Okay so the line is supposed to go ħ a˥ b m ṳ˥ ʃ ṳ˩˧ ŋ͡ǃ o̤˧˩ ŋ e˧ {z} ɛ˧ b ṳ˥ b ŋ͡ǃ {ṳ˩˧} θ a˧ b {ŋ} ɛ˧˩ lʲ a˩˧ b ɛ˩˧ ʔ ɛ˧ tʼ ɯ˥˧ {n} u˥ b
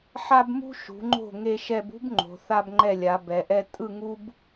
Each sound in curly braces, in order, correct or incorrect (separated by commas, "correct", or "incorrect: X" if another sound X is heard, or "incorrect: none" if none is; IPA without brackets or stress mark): incorrect: ʃ, incorrect: o̤˩˧, incorrect: ŋ͡ǃ, incorrect: ŋ